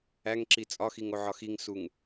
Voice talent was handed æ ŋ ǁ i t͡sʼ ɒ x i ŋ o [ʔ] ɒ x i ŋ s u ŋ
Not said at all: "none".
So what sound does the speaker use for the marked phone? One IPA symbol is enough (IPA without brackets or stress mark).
ʕ